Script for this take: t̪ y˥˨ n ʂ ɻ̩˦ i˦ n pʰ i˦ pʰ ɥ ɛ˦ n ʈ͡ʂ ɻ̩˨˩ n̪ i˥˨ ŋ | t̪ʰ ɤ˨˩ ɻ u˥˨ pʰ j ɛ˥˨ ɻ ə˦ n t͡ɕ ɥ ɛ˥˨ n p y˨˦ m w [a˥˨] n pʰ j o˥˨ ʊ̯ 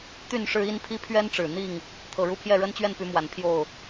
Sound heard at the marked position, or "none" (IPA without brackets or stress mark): a˨˩